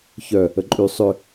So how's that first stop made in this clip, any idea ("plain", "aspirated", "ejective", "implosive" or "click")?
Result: click